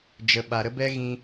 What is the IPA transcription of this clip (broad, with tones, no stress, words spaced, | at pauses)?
d͡ʒə˨ɓa˨ɾə˦bɛ˦ ɣĩ˧